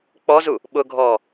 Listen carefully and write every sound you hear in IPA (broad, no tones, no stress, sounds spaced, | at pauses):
k͡p ɔ z u | ɓ ʊ ɡʱ ɔː